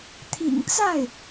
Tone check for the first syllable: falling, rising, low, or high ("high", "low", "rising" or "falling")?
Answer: low